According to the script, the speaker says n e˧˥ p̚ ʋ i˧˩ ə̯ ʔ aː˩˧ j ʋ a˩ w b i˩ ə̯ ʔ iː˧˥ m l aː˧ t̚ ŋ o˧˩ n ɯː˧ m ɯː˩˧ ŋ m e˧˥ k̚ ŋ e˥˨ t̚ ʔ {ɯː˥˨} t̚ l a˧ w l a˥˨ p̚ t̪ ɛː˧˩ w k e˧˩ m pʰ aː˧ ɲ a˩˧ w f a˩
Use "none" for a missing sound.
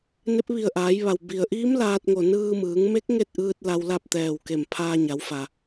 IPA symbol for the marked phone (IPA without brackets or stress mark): ɯː˧